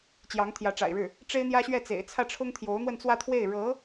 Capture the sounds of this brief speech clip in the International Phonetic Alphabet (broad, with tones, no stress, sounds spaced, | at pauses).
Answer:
t͡ɕ j ɑ˧˥ ŋ t̪ʰ j ä˧˥ ʈ͡ʂ a̰˨˩ ɪ̯ ɻ ɻ̩˥˩ | ʈ͡ʂ e˥ ɪ̯ n̪ j ä˥ ɕ ɥ ɛ˥˩ t͡s ḛ˨˩ ɪ̯ t͡sʰ ä˥˩ ʈ͡ʂʰ ʊ˥ ŋ t̪ʰ j o˧˥ ʊ̯ n̪ w ə˥˧ n t͡s w ä˥˧ t̪ʰ w e˥˩ ɪ̯ ɻ ɤ˧˥